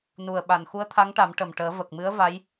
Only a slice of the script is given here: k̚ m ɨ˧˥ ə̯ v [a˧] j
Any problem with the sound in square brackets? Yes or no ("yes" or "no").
yes